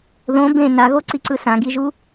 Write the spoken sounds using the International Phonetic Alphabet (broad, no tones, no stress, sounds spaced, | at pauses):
ð õ b ẽ n a ɣ o ǀ i ǀ ɯ s ã ɡ i ʒ u